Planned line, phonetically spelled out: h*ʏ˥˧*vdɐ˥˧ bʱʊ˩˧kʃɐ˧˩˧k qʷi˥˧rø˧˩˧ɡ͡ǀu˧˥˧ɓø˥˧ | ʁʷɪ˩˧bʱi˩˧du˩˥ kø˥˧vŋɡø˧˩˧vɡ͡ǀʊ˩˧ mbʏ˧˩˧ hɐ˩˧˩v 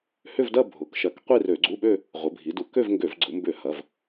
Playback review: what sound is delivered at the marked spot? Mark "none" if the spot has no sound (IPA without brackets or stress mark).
ʏ˥˧